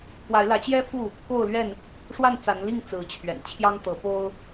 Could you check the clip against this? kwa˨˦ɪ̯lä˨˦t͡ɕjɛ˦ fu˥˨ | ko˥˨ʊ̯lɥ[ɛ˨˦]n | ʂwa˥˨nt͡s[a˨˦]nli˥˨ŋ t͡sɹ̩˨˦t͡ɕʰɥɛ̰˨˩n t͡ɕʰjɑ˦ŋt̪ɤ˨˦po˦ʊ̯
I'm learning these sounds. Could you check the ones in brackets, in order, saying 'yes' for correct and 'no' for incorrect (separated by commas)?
no, yes